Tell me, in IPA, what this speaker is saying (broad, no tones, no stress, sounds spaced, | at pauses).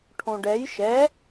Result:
ʈʰ õ ɖ ɛ j ʃ ɛ